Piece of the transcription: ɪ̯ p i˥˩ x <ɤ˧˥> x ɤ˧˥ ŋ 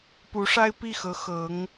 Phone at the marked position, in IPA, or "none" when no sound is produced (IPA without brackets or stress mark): ɤ˧˥